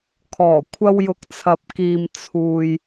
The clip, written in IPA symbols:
kʰ ɔː˨˩ kʷʰ ɐ˧ w j ʊ˨˥ k̚ t͡sʰ ɐ˧ p̚ k iː˧ m t͡sʰ uː˨ j

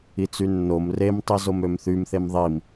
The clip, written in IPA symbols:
i t͡s y nː o m r e m tˤ i z o m ø m θ y m θ e m ðˤ i m

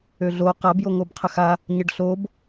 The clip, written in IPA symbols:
ø ɮ o q a b j o ŋ o b qʰ ə x a | ɲ ə ɖ ɬ o b

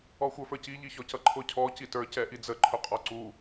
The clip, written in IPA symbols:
ɔ xʷ ə˞ f ə˞ c i ʎ i ç ɔ c ʌ ǃʰ ʊ cʰ ɔ c i t ə˞ c ɛ ʔ i d͡z ə ǃʰ ʊ qʼ ɔ ǀ u

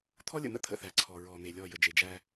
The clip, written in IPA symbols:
t̪ʰ ɔ˦ lʲ ə̰˨ n̪ ə̰˦ t̪ʰ ə̰˨ θ æ˨ ǀʰ ɔ˨ ɹ ɔ˨ n̪ e˨ lʲ ɔ˦˨ j ə˨ d͡ʒ e˨ d͡ʒ æ˦

